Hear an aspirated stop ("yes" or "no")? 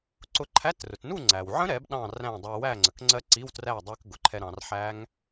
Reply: yes